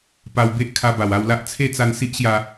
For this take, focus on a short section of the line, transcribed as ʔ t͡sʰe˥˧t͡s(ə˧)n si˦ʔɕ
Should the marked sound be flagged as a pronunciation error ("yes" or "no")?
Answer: yes